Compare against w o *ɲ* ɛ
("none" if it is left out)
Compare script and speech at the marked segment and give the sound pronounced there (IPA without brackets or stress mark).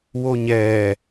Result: ɲ